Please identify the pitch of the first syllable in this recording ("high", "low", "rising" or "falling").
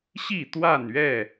falling